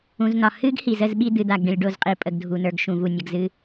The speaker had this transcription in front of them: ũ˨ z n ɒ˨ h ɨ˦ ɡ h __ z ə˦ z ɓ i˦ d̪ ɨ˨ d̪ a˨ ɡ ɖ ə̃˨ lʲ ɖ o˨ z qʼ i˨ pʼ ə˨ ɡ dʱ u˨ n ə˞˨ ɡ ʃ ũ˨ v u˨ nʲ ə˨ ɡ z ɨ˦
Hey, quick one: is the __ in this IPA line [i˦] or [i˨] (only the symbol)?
i˨